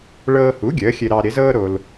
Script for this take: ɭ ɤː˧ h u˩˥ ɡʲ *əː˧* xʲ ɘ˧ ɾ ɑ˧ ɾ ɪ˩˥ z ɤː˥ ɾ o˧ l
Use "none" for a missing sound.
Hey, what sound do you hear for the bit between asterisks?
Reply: əː˩˥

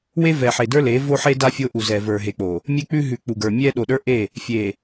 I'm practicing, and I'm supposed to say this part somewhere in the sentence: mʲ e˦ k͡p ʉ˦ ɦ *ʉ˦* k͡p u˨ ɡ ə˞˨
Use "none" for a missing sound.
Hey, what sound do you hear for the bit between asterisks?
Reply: ʉ˨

